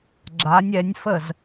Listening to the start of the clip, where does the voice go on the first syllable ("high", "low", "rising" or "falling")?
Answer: rising